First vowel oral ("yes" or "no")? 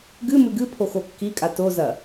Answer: yes